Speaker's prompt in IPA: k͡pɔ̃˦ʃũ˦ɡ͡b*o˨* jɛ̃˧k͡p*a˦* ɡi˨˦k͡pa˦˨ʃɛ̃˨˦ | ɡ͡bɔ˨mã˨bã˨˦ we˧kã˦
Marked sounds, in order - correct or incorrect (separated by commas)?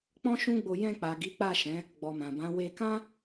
incorrect, incorrect